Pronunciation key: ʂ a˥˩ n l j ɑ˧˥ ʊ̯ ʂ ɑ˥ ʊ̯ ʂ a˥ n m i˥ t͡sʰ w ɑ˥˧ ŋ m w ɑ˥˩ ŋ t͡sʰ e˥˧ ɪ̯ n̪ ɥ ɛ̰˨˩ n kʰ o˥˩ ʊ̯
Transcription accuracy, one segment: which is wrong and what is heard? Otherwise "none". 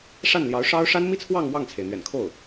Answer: e˥˧ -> e˩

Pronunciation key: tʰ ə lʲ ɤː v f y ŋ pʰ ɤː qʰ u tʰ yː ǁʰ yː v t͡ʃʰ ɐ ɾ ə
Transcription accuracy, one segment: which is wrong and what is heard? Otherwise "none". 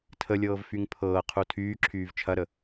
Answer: none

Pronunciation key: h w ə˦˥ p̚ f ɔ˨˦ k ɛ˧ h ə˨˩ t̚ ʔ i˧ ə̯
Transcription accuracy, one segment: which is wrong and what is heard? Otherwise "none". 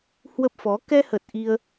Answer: none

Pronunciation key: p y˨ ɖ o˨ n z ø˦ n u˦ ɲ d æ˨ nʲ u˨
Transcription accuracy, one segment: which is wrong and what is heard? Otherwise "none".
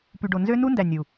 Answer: ɲ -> n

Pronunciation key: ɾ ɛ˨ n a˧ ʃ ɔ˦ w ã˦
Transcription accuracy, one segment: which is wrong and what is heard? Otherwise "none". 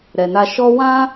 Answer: none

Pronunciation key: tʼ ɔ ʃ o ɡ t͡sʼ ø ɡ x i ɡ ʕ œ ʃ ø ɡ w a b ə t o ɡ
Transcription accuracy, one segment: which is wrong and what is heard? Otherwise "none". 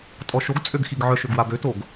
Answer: ə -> ø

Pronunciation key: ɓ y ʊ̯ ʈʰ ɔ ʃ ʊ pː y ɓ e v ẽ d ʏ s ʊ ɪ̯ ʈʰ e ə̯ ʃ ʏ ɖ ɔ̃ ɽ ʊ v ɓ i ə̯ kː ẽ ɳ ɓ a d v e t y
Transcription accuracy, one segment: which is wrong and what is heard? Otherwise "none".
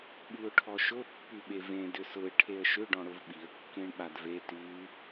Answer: none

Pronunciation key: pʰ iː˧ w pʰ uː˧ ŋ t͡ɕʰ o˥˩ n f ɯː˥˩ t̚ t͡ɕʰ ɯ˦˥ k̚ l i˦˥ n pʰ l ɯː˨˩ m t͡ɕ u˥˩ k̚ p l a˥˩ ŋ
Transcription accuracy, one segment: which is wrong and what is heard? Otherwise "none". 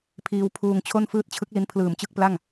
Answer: u˥˩ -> ɯ˥˩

